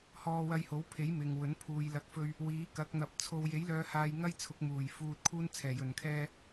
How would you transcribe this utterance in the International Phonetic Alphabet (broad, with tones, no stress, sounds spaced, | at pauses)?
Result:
h ɔː˧ w ɐ˧ j h o˨˥ w pʰ e˨˥ j m ɪ˨ ŋ w ɵ˨˥ n pʰ uː˨˧ j l ɐ˨˥ k̚ f ɵ˧ ɥ | w iː˨˥ k ɐ˨˥ k̚ n̪ ɐ˨ p̚ t͡sʰ o˧ w j e˨˥ j l œː˨˧ h aː˧ j ŋ ɐ˥ j t͡sʰ ʊ˨˥ k̚ m uː˨˩ j f uː˧ t̚ kʰ uː˥ n t͡sʰ ɛː˨˩ j ɵ˨˩ n kʰ ɛː˧